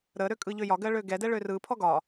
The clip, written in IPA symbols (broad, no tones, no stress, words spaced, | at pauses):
ɾəɾø kʼɯʎøjɒɡɜ ɭøɡɛdɛ ɭørɯpʰɔ ɡɒ